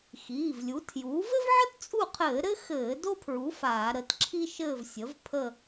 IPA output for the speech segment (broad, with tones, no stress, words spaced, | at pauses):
xiː˩˧˩vlʲu˩˥tʰjuː˩˥v ɘ˥vʕə˥tt͡sʼu˦˨qʰɘː˧˩˧ ɾɘ˥ xɘː˧˩˧ do˥pʰɹu˩˥ faː˧˩˧ɾə˩˧˩t ǁʰi˥ ʃɘː˦˨vsʲə˩˥v pʰə˦˨